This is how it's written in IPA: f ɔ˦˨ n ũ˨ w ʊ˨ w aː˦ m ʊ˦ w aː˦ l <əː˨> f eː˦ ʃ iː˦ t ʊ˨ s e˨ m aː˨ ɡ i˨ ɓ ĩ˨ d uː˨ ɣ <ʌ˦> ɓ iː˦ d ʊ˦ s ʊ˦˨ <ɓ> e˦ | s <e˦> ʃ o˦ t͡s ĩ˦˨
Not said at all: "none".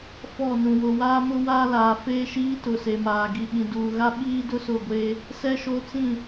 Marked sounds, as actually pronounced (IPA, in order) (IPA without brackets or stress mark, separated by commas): aː˨, a˦, ɡʷ, ɛ˦